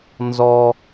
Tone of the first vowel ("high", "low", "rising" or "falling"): high